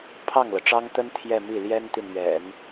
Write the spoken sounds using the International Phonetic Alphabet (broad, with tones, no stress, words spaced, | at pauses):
pʰɑ˥˩ŋlɤ˩ʈ͡ʂɑ˥ŋt̪ə˥n t̪ʰjɛ˥˧mi˥˩ ljɛ˥nt̪i˨nɥɛ̰˨˩˦n